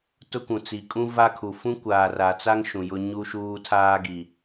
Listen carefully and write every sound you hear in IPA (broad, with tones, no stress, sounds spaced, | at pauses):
t ʊ˦ kʷ ũ˨ t͡s i˨ kʼ ũ˦ v a˦ kʰ u˨ f ũ˦ kʷ aː˨ r a˨ t͡s a˦ ŋ ʃ ũ˨ j ʊ˦ ɲ u˦ ʃ uː˦ tʰ aː˦ ɡ i˨